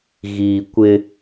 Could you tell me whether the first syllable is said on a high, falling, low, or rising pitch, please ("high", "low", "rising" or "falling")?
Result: low